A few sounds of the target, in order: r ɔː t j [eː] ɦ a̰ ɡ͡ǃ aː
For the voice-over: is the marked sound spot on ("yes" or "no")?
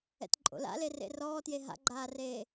no